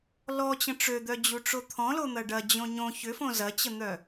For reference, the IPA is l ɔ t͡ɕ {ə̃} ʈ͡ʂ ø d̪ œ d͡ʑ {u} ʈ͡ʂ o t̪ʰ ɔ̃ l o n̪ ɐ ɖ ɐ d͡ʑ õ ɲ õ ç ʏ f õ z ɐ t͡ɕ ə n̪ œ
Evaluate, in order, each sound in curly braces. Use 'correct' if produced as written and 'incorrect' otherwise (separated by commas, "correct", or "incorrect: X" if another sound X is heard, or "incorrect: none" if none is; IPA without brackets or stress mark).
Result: correct, correct